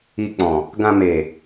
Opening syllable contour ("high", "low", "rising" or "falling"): low